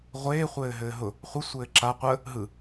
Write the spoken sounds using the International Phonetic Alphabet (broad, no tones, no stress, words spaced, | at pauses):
ʁʷeː χʷɘːɦɘːɦʊ | χʷə sʷɘːǁa qʷə | ɦɯ